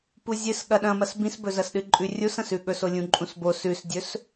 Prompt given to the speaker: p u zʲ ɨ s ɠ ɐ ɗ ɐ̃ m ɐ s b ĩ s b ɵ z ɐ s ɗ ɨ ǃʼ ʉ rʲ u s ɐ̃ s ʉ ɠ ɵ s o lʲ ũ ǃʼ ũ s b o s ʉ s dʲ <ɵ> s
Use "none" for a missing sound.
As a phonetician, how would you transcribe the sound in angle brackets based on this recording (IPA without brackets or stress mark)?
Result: ɵ